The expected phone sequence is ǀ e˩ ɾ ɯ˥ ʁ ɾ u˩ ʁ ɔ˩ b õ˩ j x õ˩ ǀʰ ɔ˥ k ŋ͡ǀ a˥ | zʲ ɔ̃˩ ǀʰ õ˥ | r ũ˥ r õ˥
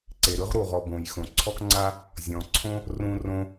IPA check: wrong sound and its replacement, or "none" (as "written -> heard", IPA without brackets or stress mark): none